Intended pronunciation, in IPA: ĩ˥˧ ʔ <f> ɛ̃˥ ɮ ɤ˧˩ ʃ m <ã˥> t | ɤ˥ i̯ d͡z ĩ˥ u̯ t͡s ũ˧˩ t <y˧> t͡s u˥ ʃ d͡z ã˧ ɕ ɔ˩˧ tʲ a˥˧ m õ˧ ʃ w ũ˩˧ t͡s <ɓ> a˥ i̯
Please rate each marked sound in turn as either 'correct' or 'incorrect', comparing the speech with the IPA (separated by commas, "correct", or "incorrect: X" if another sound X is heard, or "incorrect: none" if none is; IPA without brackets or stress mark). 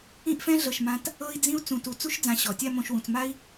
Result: correct, incorrect: ã˧, incorrect: u˧, incorrect: m